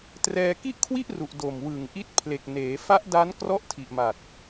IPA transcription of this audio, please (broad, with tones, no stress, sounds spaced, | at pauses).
t r ɛː˧ k i˥˩ ʔ kʰ w i˥˩ ʔ r u˨˩ ʔ d o˨˩ m w ɯ˨˩ ŋ ʔ i˦˥ t̚ pʰ l e˨˩ k̚ n eː˩˦ f a˦˥ ʔ d a˦˥ n k r ɔ˦˥ ʔ tʰ i˨˩ ʔ m a˨˩ t̚